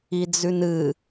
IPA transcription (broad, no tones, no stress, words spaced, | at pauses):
id͡zʉnɨ